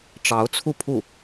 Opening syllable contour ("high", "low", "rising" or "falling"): rising